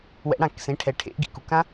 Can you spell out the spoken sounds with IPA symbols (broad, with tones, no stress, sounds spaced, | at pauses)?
w ɛ̰˨˩˦ ɽ ã˨˩˦ k s ẽ˩˧˩ ʈʰ ɛ˩ ʈʰ ḛ˨˦ ʔ ɡ ḭ˩ k u˩ k ã˦˥